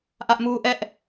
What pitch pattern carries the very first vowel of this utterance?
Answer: high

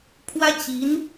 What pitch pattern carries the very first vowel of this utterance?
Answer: high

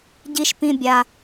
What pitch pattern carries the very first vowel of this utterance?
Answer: high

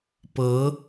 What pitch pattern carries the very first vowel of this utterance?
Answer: rising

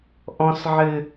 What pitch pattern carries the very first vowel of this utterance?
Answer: high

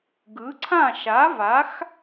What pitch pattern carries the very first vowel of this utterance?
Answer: rising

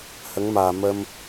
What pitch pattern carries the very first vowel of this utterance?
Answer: rising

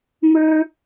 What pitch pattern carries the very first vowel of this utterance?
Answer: high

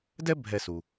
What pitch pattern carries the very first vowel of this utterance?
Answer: high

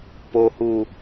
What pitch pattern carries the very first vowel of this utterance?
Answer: low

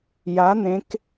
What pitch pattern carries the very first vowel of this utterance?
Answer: rising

